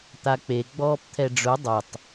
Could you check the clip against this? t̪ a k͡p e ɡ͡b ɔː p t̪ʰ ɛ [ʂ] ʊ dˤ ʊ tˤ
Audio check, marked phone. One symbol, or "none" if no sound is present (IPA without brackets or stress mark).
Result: ɖ͡ʐ